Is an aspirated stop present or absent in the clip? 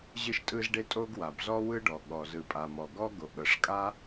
absent